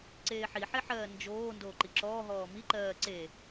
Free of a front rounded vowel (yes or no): yes